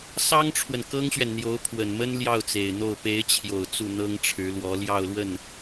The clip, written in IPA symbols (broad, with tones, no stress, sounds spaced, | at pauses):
s ɑ˥ ŋ ʈ͡ʂʰ w ə˨ n k ɤ˥ ŋ ɕ ɥ ɛ˨ n n̪ j o˧˥ ʊ̯ pʰ w ə˨˩ n m ə˥ n l j ɑ˥˩ ʊ̯ t͡s e˨˩ ɪ̯ n̪ o˥˩ ʊ̯ p e˧˥ ɪ̯ t͡ɕʰ j o˨˩ ʊ̯ t͡s u˥˩ n̪ ɤ˥ ŋ ʈ͡ʂʰ ɻ̩˧˥ l w ɔ˧˥ l j ɑ˥˧ ʊ̯ l w ə˥˩ n